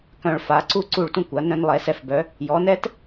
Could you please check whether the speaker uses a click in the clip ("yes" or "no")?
yes